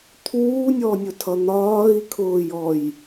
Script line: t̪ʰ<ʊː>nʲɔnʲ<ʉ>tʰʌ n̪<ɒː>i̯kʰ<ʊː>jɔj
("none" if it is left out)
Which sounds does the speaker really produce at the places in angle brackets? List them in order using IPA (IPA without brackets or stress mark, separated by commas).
uː, ʊ, ɒː, ʊː